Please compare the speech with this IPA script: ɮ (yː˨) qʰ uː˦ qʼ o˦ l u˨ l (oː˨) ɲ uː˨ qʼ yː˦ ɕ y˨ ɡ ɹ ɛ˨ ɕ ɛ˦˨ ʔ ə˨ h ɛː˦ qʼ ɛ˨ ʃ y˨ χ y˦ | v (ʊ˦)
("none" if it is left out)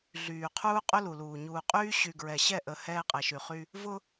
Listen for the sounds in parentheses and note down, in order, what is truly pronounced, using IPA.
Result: yː˨, uː˨, ʊ˦

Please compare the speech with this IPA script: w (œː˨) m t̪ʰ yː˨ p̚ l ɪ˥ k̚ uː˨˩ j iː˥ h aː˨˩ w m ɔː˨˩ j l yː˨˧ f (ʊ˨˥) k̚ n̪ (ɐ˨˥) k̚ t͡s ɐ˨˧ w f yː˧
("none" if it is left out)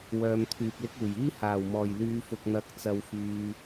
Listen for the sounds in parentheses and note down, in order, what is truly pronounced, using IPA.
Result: œː˨, ʊ˨, ɐ˨˥

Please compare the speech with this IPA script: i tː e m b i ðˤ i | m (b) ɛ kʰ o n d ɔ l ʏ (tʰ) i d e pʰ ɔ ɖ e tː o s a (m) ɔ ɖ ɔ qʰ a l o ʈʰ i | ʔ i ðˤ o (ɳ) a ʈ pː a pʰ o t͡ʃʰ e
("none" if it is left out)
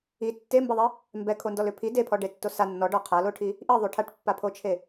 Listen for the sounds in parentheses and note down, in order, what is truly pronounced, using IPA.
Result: b, pʰ, nː, ʈʰ

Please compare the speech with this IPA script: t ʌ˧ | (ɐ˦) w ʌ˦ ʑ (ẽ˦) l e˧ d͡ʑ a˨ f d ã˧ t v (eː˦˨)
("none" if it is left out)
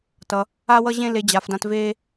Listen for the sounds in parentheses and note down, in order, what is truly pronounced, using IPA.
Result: a˦, ẽ˦, eː˦

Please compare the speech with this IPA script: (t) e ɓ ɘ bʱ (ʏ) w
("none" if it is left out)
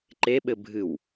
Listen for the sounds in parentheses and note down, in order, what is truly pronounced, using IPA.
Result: ǃ, ɨ

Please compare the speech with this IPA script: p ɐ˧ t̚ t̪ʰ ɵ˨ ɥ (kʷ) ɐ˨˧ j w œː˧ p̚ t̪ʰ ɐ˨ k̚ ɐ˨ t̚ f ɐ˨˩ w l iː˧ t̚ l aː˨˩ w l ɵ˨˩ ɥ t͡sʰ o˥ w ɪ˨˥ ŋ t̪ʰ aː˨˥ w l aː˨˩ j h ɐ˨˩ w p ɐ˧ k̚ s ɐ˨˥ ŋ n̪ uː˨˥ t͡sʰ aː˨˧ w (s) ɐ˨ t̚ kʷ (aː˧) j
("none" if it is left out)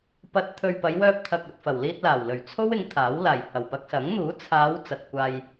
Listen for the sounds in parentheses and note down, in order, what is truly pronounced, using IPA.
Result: p, t͡s, aː˧

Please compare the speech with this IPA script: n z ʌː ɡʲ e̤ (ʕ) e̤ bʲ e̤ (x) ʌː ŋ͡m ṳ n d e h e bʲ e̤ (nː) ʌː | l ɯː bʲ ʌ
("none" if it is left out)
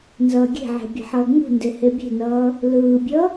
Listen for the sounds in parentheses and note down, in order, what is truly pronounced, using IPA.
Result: ʕ, ħ, n

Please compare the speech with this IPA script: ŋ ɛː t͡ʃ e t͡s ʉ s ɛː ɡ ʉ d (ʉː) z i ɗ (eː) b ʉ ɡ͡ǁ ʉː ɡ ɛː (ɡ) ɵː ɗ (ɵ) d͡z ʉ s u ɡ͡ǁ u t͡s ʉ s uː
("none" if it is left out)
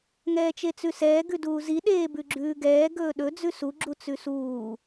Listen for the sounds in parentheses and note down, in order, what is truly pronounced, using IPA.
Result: uː, eː, ɡ, ɵ

